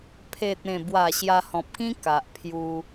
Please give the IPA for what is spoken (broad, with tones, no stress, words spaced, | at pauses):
pʰe˨t̚ẽ˨˩bwa˨˩ ɕja˧hɔ̃˨p̚kĩ˦ ka˨ʔ pʰju˧